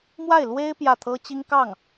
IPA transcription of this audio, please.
m w a˥˩ ɪ̯ l w e˥ ɪ̯ p j ä˥˩ t̪ʰ ɤ˥ t͡ɕ i˥ ŋ k ɑ˥˩ ŋ

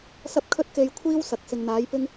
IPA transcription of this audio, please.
s ɐ˥ p̚ kʰ ɵ˥ t̚ k e˧ j kʷʰ iː˥ w s ɐ˨ k̚ s ɪ˨ ŋ n̪ aː˨˥ j p ɪ˥ ŋ

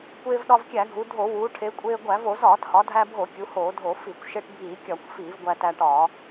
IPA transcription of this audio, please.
kʷ eː˧ v ɗ ɒ˧ v kʲ æ˧˩˧ ɡʱ u˩˧ dʱ o˧˩˧ w uː˩˧ ʈʰ e˩˧ kʷʼ eː˧ ɡʷ æ˧˩˧ v o˧˩˧ z ɒː˧˩˧ t h ɒ˩˧ dʱ æ˧ bʱ o˧˩˧ kʲ u˩˧ h oː˧˩˧ dʱ o˧˩˧ f i˧˩˧ kʷ ʃ e˧ ʈ bʱ iː˧˩˧ kʲ ɒ˧˩˧ kʷ f iː˧˩˧ v ɡʷ æ˧ t æ˧ ʈ ɒː˧˩˧

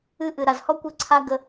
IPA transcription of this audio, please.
ɨ˦ ʔ ɨ˨ ɾ a˨ z h ɔ˦ kʷ ɨ˦ ǀʰ a˦ ɡ ə˧

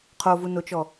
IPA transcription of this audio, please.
qʰ o v u n o t͡ʃ ɔ

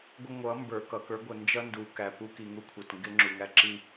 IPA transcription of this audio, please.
ɡʷ ə˦ ŋʷ ʌ˨˦ m b ə˞˨ k ʌ˨ k ə˞˦ ɡʷ ə˨ n d͡ʒ ʌ˦ n d u˨ k æ˨ p u˦ k i˨ ŋ u˦ kʷʰ ʌ˨ t ŋ ɡ ɪ˦ ŋ͡ǁ u˨ ŋ æ˦ ǁ i˦

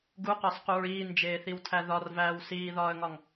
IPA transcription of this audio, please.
ɡ u q ɒ s q u ɹ iː n d͡ʒ eː θ i w tʰ æ ð ɒ r v æː w s iː ð ɒː ə̯ ŋ ɒ ŋ

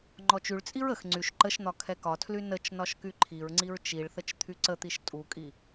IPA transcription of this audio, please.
ŋ͡ǃ ɔ t͡ʃ y ɭ t͡sʼ i ɹ ə x ŋ͡ǀ y ʃ ǃ ə ʃ n̪ ɒ kʰ ɛ k ɒ tʰ l y n ə t͡ʃ n ɒ ʃ k y ǃʰ i ɹ ŋ͡ǀ i ɹ t͡ʃ i ɭ θ ə t͡ʃ t̪ʰ y ǀ ə t̪ i ʃ tʼ u kʼ i

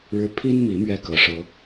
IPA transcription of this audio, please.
ɻ ɻ̩˦ pʰ i˦ n m i˨˦ m ɥ ɛ˥˨ k ɤ˨˩ ʂ ɤ˨˦

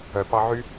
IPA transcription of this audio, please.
œ˨ p ɑ˧ ʕ y˦

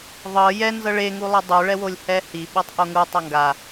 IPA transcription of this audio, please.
ðˤ ɤ j ɛ n z ɤ ɭ e ŋ u lˠ ɛ dˤ u ɭ ɛ w o lʲ h ɛ h i ɓ o tˤ ʔ o ŋ u tˤ a ŋ ɡ a

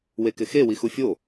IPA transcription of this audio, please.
w e k ɪ x e w i x u fʲ o

